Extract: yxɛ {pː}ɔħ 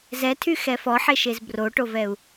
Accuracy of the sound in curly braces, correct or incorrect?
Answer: incorrect